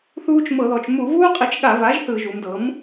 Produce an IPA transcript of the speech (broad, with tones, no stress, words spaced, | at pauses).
θuː˦t͡ʃ mɤ˧˩˧ðɔ˩˧t͡ʃ mu˧˩˧vuː˦qʼi˩˥t͡ʃ ɠa˧˩˧va˩˥ʒ θɯ˧˩˧ʒu˩˧mdɤ˩˥m